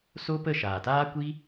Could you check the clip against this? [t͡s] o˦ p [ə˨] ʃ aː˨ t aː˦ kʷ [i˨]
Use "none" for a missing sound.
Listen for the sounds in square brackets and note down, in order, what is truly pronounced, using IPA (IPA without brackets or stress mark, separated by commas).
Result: s, ə˦˨, i˦